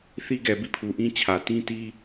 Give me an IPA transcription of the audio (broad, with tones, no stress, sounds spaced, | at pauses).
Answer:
θ i˦ ɡ ɛ˨ b i˦˨ pʰ u˨ ʔ ĩ˦ t͡ɕʰ ä˨ t ĩ˦ t i˦